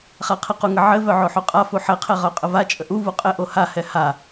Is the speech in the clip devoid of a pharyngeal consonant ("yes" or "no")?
no